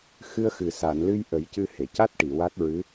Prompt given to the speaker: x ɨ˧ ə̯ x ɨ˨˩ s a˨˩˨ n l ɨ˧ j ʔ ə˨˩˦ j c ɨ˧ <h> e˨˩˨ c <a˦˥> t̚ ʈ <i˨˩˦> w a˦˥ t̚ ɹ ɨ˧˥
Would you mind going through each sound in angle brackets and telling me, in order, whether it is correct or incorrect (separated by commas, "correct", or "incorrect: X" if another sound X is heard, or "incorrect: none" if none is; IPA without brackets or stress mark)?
correct, correct, incorrect: i˨˩˨